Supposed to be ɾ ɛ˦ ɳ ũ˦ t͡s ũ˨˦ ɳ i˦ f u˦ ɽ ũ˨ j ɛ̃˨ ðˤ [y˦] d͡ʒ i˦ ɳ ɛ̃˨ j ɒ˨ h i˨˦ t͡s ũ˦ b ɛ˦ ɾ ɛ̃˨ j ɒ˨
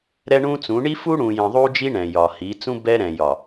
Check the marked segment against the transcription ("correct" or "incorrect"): incorrect